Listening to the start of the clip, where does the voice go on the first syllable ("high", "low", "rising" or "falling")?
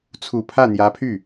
low